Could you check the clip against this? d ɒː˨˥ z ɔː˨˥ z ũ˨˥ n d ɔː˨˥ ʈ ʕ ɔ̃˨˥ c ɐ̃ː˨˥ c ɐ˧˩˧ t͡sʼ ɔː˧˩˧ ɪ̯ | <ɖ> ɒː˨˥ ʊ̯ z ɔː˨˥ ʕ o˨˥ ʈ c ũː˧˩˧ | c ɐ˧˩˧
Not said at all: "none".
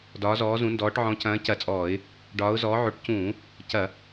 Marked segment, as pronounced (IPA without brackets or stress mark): ɖ